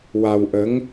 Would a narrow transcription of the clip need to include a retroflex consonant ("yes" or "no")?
no